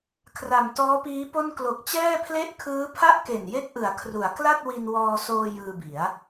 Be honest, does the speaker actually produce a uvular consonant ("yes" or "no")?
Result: no